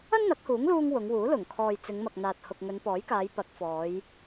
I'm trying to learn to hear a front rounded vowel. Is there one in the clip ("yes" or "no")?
no